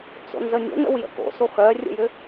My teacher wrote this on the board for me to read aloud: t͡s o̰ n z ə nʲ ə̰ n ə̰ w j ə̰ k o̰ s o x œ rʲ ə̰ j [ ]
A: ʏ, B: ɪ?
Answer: A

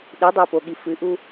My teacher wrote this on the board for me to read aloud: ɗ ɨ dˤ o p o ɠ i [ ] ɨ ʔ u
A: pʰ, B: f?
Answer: B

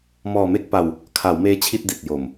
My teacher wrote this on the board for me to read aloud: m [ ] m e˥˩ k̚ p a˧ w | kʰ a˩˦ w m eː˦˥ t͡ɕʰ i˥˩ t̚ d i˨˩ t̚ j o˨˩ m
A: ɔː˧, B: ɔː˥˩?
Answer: A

